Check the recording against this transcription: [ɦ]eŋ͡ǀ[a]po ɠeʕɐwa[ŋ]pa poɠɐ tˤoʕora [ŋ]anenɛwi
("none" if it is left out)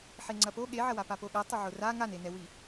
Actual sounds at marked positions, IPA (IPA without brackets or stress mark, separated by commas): ħ, ɐ, none, ŋ